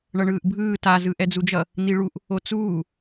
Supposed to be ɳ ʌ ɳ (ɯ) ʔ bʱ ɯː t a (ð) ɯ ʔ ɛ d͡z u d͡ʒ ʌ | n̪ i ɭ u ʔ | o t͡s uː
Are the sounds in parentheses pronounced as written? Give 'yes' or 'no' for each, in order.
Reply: no, no

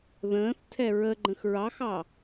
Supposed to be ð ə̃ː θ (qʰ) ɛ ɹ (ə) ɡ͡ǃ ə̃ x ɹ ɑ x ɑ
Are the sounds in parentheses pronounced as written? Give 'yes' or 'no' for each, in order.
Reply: no, yes

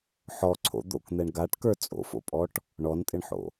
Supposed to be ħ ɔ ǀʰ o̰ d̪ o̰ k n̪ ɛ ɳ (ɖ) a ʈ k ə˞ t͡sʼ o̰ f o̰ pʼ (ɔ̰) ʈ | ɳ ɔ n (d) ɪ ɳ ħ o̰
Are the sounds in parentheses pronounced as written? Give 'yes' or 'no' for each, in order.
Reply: no, no, no

